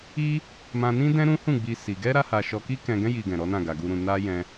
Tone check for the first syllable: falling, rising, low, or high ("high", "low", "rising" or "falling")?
high